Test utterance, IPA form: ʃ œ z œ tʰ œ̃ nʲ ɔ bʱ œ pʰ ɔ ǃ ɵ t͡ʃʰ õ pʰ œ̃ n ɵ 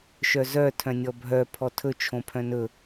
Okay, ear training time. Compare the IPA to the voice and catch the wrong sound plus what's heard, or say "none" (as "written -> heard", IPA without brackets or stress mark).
ǃ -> tʰ